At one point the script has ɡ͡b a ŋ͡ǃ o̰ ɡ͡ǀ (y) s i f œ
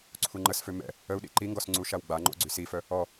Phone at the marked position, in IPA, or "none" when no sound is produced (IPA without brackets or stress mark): y